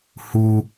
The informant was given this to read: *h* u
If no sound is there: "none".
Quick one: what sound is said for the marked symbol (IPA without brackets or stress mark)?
h